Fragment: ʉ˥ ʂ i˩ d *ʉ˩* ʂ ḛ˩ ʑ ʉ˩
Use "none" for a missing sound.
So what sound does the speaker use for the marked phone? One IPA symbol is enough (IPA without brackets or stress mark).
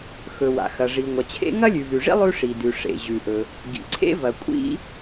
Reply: ʉ˩